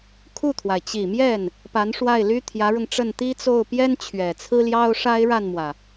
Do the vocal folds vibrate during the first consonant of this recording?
no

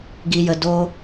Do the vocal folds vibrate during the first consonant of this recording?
yes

